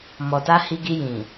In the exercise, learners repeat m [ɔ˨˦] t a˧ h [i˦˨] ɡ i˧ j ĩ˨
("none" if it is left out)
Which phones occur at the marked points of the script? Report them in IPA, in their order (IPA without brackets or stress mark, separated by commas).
ɔ˨, i˧